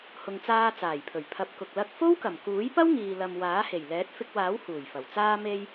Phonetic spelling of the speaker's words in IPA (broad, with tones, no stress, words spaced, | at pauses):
hʊ˨ŋt͡saː˧ t͡saː˨˩jpʰɵ˨˩ɥ pʰɐ˨˥p̚kʊ˨k̚ lɐ˧k̚ fo˥wkɐ˨˩mkuː˨˥j pɐ˥wŋiː˨lɐ˨m waː˨˥he˨˩j lɛː˨˥t̚fɪ˧k̚waː˨˥w huː˨˩jfɐ˨˩w t͡saː˧me˧j